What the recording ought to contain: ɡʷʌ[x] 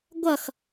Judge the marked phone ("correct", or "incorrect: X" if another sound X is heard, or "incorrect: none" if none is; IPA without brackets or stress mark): correct